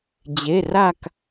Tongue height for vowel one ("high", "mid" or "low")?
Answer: mid